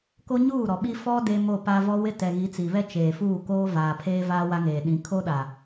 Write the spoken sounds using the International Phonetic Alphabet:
k o˦ ɲ uː˦˨ ɾ ɔ˨ ɓ i˦ f ɔ˦ d e˦ m o˦˨ p a˦ v ɔ˦ w ɪ˦ t ɛ˨ ɣ i˨˦ t͡s i˨ β ɛ˦ t͡ʃ eː˨ f uː˦˨ k oː˦ v aː˨ pʰ eː˦ v aː˦ w a˦ ŋ eː˨ ɗ ĩ˨˦ kʰ o˦ ɗ a˨

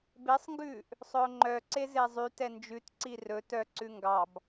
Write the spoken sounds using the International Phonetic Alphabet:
b e sˤ ŋ ɡ ʉː ʔ | sˤ ɵ ʊ̯ ŋ͡ǃ œ ǀ e z e zˤ y t ɛ n d͡ʒ ʉ t ǀ i r ɵ t œ ǀ ʉ ŋ ɡ ɑ b

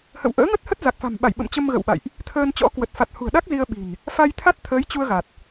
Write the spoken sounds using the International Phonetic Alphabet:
h ə̰˧˨ w ʔ ə̰ː˧˥ ŋ ə˦˥ t̚ h ə˦˥ t̚ z a˨˩ k̚ f a̤˨˩ m ɓ a˧˩ j ɓ ə̰˧˨ m t͡ɕ ə˧ m ɣ ə̰˧˨ w ɓ a̰˧˨ j ʔ | t̪ʰ əː˧ n t͡ɕ ɔ̰˧˥ k w ə˨˩ t̚ f a˨˩ t̚ h ṳ˨˩ ə̯ ɗ a˦˥ k̚ z i˧ ə̯ ɓ i̤˨˩ n | f a˧ j t̪ʰ a˦˥ t̚ t̪ʰ əː˨˦ j t͡ɕ u˧ ə̯ ɣ a˨˩ t̚

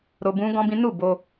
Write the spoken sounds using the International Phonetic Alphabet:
ɾ o˧ b ũ˦ ɡ ɔ̃˦ b ĩ˦ n u˦˨ b o˧

